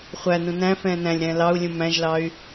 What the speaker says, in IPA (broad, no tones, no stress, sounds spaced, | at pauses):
χʷ æ n ũ n æ̃ f ɛ̃ː n æ̃ lʲ ɾ ɛ̃ː l ɑ u̯ lʲ ũ m æ̃ ʒ l ɑ y̯